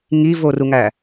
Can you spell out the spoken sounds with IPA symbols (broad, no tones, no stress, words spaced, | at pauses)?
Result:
ŋivoruŋæ